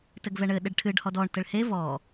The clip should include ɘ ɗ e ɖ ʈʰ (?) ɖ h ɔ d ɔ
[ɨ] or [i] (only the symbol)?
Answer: ɨ